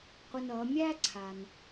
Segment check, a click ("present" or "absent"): present